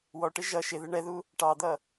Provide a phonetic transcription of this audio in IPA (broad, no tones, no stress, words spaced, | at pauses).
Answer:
wɔʈɪ ʒʌ ʃɪðɪ ɳɛðu | ʈɑd̪ʌ